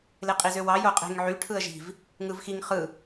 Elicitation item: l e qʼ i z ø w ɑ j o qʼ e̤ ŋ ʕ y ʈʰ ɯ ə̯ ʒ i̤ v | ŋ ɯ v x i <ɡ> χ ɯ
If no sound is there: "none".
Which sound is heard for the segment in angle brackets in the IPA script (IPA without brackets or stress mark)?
ŋ